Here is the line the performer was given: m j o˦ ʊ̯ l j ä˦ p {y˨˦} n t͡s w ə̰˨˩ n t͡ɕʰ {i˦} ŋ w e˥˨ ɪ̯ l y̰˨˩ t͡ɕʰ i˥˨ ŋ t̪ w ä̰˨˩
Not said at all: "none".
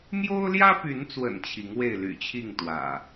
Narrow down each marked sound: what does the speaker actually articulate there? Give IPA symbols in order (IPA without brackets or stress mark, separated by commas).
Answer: y˨˦, i˨˦